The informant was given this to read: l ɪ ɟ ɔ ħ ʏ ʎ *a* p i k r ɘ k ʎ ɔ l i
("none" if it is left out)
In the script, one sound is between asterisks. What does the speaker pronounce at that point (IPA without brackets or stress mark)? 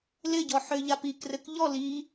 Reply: a